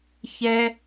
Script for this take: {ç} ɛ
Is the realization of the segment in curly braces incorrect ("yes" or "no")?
no